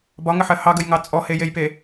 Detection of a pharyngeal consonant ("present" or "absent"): present